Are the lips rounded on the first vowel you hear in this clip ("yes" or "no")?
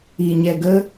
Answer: no